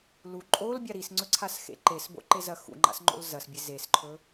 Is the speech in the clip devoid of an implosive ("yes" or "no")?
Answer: yes